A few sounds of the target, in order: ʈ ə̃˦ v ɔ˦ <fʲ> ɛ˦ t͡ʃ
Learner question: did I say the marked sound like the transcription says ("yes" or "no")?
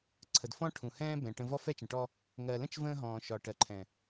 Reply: no